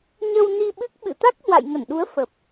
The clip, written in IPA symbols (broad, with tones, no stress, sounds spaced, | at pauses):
ɲ ə˧ w n i˧ ɓ ɨ˦˥ k̚ ɓ ɨ̰˧˨ t̪ a˦˥ k̚ h w a̰˧˨ j ŋ ə˧˩ n ɗ u˨˦ ə̯ f ə˨˩ p̚